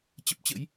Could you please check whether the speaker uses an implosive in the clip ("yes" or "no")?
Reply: no